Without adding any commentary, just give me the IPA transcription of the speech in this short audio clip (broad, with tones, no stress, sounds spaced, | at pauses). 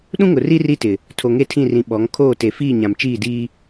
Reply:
ɗ ũ˦ ŋ ʊ˨ r i˦ r i˦ t ɪ˨ | tʰ o˨ ŋ e˦ tʰ ĩ˦˨ r ĩ˨ ɓ ɔ˨˦ ŋ kʰ oː˦˨ t e˨ f iː˦˨ ɲ ã˨ m t͡ʃ iː˦˨ d iː˦